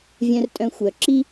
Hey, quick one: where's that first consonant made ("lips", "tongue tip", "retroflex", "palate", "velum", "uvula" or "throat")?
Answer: lips